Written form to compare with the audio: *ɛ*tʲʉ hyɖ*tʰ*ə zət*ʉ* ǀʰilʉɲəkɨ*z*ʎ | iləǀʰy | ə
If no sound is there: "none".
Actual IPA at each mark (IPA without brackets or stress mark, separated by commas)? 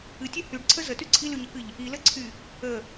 ɨ, ǀʰ, ʉ, none